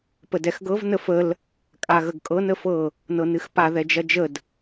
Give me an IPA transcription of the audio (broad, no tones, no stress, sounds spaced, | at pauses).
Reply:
p ə d ɛ x ɡ ɤ v n ə f ə l | kʼ a ɣ ə ɡ kʼ ɤ n ə f ɤ | n ɤ n ɨ x p a ð ɛ d͡ʒ ɐ d͡ʒ ə d